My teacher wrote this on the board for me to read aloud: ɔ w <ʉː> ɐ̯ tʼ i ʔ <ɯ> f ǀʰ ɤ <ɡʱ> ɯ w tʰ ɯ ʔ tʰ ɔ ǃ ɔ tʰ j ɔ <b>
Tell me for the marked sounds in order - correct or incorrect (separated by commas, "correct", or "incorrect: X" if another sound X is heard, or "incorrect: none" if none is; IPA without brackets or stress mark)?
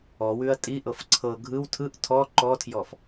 incorrect: ʉ, incorrect: ɤ, correct, incorrect: f